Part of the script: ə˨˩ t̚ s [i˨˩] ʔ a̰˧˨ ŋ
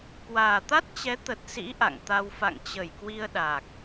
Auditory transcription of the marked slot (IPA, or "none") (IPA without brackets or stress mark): ḭ˧˥